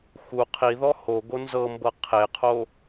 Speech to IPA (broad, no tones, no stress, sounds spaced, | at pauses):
x u qʰ i ð ɔ h o ɡ o n z ɤ m b ɤ qʰ e qʰ o